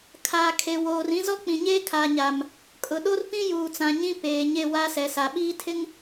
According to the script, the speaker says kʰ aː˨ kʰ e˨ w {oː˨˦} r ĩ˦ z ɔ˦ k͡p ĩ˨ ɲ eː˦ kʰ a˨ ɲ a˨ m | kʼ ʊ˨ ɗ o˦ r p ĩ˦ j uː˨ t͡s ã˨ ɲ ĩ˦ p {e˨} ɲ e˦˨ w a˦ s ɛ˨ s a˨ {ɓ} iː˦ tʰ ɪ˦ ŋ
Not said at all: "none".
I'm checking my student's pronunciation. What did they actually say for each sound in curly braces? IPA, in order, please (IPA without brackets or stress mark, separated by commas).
oː˨, eː˨, ɓ